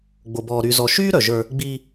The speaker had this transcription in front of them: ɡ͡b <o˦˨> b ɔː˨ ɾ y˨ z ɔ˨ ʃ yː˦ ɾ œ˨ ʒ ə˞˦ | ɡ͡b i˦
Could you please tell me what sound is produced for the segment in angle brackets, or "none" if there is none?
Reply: o˨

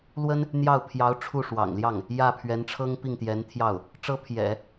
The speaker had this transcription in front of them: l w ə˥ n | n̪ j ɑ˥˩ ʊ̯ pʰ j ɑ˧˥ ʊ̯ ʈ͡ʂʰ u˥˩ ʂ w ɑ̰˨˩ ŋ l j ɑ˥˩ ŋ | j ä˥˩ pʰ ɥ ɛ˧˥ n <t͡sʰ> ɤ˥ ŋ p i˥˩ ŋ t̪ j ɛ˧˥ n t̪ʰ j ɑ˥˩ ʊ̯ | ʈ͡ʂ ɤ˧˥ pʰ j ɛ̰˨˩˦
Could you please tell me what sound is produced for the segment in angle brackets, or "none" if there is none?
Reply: ʈ͡ʂʰ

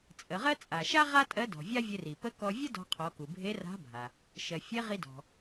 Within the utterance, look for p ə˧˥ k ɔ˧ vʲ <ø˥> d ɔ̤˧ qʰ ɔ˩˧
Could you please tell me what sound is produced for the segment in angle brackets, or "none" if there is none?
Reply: ə˥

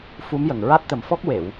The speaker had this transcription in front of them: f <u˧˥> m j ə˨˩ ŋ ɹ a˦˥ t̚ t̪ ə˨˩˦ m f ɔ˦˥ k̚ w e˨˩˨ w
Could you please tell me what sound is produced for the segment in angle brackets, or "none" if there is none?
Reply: u˧˥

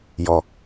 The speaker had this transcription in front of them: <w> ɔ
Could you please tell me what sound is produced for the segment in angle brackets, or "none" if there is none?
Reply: j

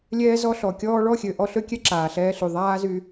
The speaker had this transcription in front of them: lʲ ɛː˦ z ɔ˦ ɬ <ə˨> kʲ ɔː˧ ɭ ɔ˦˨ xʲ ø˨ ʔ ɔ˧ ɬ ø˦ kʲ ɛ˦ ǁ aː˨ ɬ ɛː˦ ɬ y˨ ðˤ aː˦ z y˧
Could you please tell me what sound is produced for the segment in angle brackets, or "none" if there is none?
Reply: ɔ˨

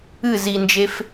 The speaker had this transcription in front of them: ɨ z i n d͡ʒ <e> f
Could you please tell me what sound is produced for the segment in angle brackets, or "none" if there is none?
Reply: e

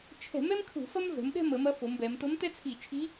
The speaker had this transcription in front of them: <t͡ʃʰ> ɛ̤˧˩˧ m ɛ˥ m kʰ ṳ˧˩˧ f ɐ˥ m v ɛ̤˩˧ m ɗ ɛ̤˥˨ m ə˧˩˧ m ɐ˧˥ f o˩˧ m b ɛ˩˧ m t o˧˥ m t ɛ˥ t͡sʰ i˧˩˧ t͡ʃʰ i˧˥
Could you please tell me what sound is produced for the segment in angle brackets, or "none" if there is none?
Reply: t͡ʃʰ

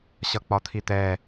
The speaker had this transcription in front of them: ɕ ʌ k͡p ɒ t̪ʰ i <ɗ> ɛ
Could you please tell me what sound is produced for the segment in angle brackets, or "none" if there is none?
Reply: t̪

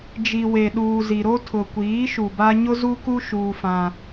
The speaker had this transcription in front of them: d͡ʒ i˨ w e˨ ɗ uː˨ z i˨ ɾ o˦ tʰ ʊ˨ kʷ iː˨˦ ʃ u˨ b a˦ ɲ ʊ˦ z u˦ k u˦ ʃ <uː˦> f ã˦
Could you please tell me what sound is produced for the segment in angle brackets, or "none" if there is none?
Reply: uː˦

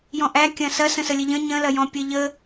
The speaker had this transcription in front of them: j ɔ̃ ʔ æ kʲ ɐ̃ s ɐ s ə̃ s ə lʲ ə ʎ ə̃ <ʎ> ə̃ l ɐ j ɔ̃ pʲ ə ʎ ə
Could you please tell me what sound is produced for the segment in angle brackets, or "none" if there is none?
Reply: ɲ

